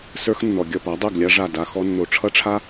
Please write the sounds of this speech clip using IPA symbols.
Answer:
s ə˞˥ x nː ɔ˩ ɡʲ ʌ˥˩ p a˩˥ dˤ ɛ˥˩ ɡ lʲ a˥ ʐ a˥˩ d a˧ x ɔ˧ nː o˩ ʈ͡ʂʰ ʌ˥ ʈ͡ʂʰ a˥

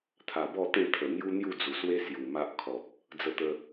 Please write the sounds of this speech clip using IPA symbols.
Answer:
t̪ʰ a˨˩ b ɔ˥˧ t̪ ẽ˥˧ t̪ʰ ə˨˩ n̪ j u˦ n̪ j u˥˧ d͡z u˨˩ s w e˦ s j u˨˩ m a˦ ʔ kʰ ɔ˨ p̚ | d͡z ə˧ t̪ ə˧

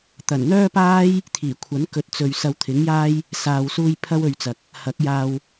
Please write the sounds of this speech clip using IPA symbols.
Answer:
t̪ ɐ˨˩ n n̪ œː˥ p aː˥ j | t̪ʰ iː˨˩ kʷʰ ɐ˨˥ n k ɵ˨˥ t̚ t͡s ɵ˨ ɥ s ɐ˧ w t̪ʰ ɪ˨˥ ŋ j aː˥ j | s aː˨ w s uː˧ j pʰ ɐ˥ w ɵ˧ ɥ t͡s ɐ˨ k̚ | h ɐ˨˥ k̚ j aː˧ w

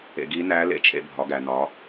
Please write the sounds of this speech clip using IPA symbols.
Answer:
ḛ˧ ɡ i˧˥ n æ˧˥ l ḛ˧˥ t͡ʃʰ ḛ˧ bʱ ɒ˩˧ ɡ æ˩ n ɒ˩˧

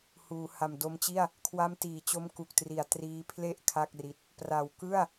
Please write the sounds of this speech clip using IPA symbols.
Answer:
h uː˩˦ h a˨˩ m d o˧ m t͡ɕ i˥˩ a̯ | kʰ w a˦˥ m t iː˨˩ t͡ɕ o˦˥ m k u˨˩ k̚ t r i˨˩ a̯ t r iː˦˥ pʰ l e˥˩ ʔ kʰ a˥˩ k̚ r i˦˥ t̚ | p r a˨˩ w k ɯ˥˩ a̯

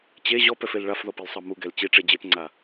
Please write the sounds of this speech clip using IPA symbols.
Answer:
t͡ɕ e ʑ ɔ p ɛ f e l ɭ a f ð ɔ p i l sˤ ɤ m u ɡ ɛ l t͡ɕ i ʈ͡ʂ e d͡ʑ e p ŋ͡ǀ a

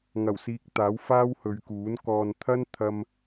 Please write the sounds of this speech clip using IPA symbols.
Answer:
ŋ ɐ˨˩ w s iː˨ k̚ t̪ aː˨˥ w f aː˥ w h ɵ˨˧ ɥ k uː˨˥ n k ɔː˨ n t̪ʰ ɐ˥ n t̪ʰ ɐ˧ m

